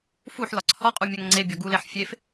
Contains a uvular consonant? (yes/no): yes